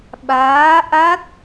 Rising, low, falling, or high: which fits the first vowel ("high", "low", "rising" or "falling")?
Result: rising